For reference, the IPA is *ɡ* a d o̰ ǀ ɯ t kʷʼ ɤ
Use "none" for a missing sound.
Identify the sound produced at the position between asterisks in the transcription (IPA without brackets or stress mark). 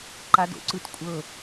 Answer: ǃ